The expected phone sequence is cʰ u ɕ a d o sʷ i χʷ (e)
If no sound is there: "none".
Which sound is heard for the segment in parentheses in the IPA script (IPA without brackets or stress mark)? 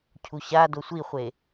e